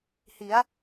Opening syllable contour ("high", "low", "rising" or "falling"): rising